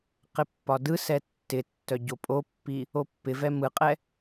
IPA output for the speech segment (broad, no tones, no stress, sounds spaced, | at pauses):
q ɪ pː ɒ d ɯ s ɛ tː ɪ tː œ ɟ o pʼ o pː i | o pː ɪ v ɛ m ɯ qʼ ɛ